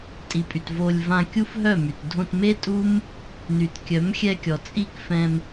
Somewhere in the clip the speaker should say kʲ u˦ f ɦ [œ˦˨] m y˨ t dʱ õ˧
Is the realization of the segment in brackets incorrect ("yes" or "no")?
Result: no